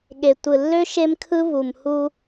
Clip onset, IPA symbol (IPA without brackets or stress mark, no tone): ɠ